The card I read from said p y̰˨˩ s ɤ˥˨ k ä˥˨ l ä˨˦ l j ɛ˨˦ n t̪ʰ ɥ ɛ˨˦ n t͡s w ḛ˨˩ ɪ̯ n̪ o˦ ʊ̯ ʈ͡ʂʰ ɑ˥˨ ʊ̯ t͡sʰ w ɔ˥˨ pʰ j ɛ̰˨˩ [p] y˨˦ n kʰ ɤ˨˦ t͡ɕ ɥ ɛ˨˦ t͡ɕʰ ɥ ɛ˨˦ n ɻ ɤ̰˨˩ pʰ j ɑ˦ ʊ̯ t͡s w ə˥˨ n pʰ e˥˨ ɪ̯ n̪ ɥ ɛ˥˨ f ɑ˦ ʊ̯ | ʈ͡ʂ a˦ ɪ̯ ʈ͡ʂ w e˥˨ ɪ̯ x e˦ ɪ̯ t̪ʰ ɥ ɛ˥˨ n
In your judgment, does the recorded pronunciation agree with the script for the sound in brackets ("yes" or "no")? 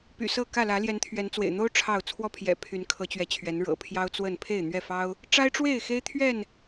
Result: no